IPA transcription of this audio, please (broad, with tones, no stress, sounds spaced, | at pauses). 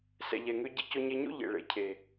s ɛ̰˨ ʎ ɛ˨ ŋ ø˧ ɟ e˧ c o˧ ɲ e˧ ɲ o̰˦ ʎ ḛ˨ ɭ ḛ˨ cʰ e˨